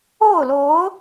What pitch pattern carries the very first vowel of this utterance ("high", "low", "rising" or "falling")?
falling